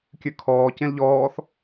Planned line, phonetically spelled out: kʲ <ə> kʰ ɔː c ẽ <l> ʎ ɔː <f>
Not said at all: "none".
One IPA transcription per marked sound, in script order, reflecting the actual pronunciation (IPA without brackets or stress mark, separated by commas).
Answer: ʉ, l, θ